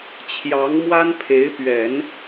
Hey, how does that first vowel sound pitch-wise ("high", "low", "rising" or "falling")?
rising